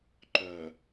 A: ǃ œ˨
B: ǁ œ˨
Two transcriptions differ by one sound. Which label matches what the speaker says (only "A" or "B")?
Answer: A